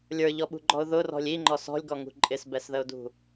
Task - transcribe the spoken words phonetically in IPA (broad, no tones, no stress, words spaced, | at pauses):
lʲə˞ʎɔɓṳɡ͡ǃɔʊ̯ ðʊrɔ̤lʲ iŋ͡ǃɔ sɔ̤lʲɡɔŋṳ ǃʼɪsbɛsðəʊ̯dṳ